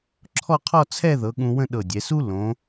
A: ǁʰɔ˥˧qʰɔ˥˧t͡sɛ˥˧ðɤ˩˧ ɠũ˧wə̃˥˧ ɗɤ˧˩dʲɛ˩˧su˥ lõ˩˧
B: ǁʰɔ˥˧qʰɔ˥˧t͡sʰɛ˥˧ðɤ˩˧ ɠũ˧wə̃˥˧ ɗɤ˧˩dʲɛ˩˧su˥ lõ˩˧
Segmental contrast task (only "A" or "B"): B